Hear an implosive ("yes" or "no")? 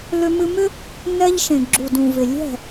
no